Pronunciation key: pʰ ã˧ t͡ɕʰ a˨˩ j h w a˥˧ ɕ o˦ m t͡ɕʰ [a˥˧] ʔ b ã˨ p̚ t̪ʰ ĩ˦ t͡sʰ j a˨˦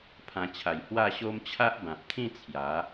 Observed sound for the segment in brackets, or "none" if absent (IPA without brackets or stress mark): a˦